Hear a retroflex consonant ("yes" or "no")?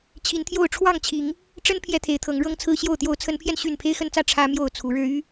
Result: yes